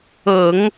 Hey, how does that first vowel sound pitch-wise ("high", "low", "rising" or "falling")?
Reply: low